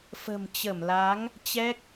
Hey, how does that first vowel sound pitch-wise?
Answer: low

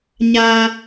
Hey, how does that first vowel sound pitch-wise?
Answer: high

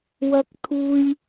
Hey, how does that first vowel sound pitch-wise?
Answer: high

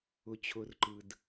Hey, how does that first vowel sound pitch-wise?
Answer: low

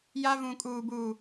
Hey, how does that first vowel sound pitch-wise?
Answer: high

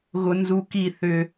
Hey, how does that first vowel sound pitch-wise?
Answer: high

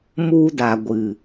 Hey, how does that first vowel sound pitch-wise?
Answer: high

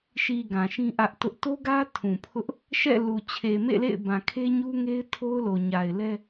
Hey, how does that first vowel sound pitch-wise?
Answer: low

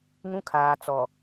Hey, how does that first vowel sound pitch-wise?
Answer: high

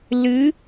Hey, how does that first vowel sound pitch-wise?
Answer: rising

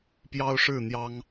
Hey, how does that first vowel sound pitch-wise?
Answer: high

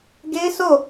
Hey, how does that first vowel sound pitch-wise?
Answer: high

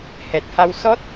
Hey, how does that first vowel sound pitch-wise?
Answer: low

